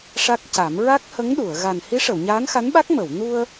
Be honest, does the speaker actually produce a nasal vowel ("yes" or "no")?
no